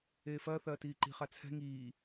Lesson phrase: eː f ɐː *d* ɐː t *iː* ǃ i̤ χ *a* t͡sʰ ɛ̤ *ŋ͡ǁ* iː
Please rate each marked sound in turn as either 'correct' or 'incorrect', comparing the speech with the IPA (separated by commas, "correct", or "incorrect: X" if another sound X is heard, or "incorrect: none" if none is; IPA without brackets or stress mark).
incorrect: θ, correct, correct, incorrect: ŋ